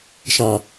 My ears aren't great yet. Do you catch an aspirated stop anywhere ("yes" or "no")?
no